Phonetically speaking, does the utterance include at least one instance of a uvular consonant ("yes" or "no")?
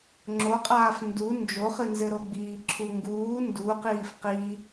yes